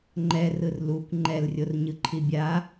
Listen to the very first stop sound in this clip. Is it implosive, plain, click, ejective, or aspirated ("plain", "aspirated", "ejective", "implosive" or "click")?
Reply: click